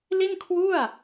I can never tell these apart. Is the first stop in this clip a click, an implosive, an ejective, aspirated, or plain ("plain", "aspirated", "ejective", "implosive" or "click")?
aspirated